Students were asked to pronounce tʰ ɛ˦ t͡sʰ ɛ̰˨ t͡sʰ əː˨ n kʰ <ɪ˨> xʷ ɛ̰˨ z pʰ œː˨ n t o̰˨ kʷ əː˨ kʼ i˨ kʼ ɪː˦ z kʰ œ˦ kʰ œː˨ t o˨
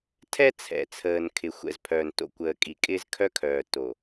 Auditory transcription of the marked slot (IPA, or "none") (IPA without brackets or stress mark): ɪ˨